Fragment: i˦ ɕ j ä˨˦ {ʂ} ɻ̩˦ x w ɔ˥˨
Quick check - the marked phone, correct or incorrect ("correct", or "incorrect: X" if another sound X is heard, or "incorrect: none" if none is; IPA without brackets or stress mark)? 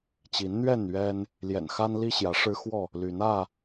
correct